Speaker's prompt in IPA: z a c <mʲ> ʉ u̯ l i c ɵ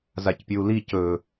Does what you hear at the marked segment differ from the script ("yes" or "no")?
yes